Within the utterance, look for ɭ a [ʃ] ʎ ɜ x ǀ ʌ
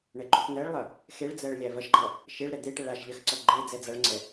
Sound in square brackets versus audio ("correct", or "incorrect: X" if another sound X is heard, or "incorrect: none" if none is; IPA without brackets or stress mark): correct